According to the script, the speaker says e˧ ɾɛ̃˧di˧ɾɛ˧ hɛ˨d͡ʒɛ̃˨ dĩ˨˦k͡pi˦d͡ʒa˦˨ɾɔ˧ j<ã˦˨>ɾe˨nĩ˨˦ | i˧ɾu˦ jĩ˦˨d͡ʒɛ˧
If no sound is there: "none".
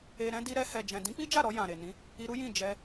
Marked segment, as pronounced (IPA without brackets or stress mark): ã˨